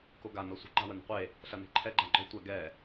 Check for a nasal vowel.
absent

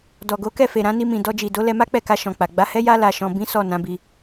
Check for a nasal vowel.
present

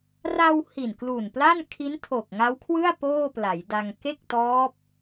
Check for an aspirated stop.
present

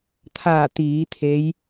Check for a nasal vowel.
absent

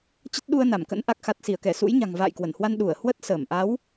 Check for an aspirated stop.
absent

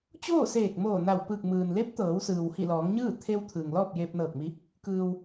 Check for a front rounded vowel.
absent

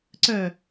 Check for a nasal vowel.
absent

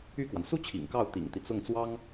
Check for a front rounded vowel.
present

